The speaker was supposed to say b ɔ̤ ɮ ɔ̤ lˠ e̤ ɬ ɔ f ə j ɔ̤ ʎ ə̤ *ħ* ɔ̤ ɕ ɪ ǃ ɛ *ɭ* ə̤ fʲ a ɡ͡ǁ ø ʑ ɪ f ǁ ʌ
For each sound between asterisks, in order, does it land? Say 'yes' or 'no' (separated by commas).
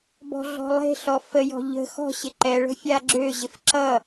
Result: no, yes